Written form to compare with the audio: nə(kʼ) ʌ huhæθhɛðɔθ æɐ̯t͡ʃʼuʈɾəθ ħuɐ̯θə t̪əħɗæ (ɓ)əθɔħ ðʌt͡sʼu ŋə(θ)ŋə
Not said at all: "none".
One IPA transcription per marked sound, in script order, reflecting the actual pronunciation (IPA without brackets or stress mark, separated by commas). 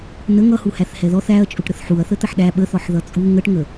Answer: ŋ, ɓ, ʈ